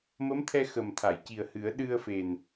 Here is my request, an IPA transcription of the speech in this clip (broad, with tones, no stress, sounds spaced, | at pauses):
m ə˧˥ m t̪ʰ ɛ˧ x ə˨˩ m t̪ʰ a˨˩˨ j c i˨˩ ə̯ h ɨ˨˩˦ ə̯ ɗ ɨ˧ ə̯ f e˨˩ n